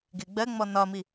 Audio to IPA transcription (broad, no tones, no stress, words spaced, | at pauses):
ɡɪ ɡ͡bɜŋ͡mɔ nɒmi